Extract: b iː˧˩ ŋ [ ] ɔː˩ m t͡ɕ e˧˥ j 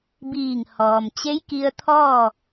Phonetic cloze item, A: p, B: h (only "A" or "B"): B